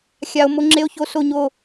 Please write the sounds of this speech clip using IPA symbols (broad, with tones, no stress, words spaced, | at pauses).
xʲa˧o̯ mo˧ŋ͡ǁe˧o̯ço˧ so˥˧ɲo˥˧